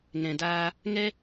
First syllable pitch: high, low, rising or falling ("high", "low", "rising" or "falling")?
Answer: low